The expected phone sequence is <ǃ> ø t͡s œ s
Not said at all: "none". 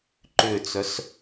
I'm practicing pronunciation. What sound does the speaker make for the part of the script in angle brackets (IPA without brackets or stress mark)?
ǃ